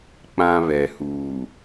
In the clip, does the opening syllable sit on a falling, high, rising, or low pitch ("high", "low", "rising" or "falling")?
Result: high